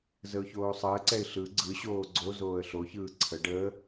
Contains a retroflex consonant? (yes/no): yes